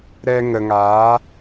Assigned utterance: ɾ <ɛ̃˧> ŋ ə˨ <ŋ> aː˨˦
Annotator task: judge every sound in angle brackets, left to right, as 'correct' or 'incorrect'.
incorrect: ɛ˧, correct

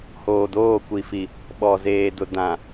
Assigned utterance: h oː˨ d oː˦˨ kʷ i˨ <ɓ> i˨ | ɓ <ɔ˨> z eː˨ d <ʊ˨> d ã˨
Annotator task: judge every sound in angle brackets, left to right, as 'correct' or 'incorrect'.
incorrect: f, correct, correct

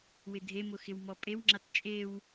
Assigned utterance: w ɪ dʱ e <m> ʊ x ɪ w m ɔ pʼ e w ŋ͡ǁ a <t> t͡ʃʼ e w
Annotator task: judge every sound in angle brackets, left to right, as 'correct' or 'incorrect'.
correct, correct

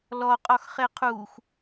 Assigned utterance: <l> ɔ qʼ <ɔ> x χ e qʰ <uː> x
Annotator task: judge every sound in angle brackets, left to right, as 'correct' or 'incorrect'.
correct, correct, correct

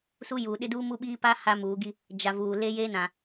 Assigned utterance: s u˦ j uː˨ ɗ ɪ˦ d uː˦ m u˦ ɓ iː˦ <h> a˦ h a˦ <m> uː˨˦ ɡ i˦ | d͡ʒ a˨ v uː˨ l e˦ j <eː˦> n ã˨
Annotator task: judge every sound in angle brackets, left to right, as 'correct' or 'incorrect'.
incorrect: p, correct, correct

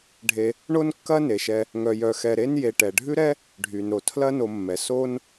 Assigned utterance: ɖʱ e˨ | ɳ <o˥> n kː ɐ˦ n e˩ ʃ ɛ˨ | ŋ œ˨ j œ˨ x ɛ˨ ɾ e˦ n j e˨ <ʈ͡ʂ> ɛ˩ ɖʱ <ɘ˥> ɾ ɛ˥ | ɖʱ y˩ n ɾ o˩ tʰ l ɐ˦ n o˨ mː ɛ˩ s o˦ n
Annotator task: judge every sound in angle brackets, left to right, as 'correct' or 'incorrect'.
incorrect: o˦, incorrect: ʈ, incorrect: ʉ˥

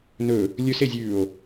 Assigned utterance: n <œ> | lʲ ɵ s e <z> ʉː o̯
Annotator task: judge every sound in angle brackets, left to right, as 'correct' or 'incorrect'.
incorrect: ɵ, incorrect: zʲ

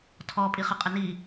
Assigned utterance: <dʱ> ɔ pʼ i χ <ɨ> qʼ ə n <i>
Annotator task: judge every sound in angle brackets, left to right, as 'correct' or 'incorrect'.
incorrect: tʰ, incorrect: ə, correct

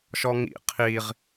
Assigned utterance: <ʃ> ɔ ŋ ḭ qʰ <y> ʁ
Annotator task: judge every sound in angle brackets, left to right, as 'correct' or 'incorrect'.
correct, incorrect: i

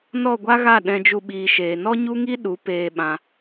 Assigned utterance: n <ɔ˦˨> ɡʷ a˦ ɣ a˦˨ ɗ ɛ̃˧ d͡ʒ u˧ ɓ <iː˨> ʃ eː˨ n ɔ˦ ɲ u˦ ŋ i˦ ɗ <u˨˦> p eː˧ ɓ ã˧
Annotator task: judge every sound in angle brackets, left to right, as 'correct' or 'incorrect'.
correct, correct, correct

